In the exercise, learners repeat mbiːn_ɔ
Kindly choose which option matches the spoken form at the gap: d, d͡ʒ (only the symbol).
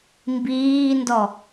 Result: d